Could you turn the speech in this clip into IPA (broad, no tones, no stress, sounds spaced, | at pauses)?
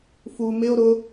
f u m ɪ o̯ ɾ ʊ